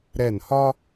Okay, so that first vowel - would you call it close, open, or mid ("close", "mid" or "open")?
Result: mid